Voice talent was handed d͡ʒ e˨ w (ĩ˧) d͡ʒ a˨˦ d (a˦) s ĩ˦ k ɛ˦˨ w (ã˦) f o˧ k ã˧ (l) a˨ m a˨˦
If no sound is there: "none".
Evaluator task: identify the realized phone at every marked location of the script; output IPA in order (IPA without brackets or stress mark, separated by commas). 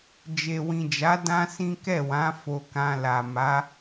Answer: ĩ˨, ã˦, ã˨˦, l